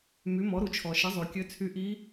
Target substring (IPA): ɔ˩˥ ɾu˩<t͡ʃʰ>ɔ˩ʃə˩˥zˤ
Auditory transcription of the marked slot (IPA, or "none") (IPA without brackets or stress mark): t͡ʃʰ